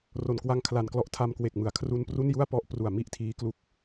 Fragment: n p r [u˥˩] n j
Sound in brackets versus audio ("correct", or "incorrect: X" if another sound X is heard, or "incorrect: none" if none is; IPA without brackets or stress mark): correct